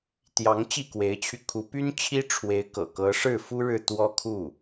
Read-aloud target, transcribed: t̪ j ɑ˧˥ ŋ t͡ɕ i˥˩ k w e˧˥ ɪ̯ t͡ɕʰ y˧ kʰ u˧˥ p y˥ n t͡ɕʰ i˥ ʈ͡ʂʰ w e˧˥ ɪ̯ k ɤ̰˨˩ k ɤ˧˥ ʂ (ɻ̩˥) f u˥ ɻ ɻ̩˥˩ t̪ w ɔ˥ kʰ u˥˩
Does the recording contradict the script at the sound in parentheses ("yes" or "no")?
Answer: yes